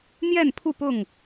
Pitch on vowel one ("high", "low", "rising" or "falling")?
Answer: falling